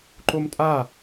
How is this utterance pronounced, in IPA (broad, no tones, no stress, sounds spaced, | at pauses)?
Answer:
ǃ o m tʼ a